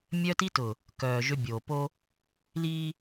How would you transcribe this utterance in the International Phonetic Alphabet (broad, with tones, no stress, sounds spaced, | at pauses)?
mʲ œ˦ t i˦ t ʊ˨ | k œː˨ ʒ ø˦ bʲ oː˨ p o˦ | l iː˦